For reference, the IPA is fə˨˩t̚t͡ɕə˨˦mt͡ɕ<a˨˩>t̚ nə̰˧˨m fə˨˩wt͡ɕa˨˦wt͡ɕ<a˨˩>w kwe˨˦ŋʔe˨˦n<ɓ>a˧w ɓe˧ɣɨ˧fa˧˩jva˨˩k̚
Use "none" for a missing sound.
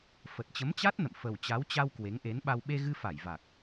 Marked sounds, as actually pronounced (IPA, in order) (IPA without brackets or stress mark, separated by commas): a˦˥, a˧, ɓ